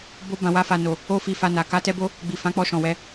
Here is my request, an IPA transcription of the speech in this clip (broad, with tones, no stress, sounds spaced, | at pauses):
b o˧ b ã˨ w a˧ f a˨ n o˨ | o˦ f i˧ f a˧ n a˨ k a˧ t ɛ˧ b o˦ | ɡ͡b i˨ f ã˨˦ k͡p ɔ˧ ʃ ɔ̃˨ w ɛ˨˦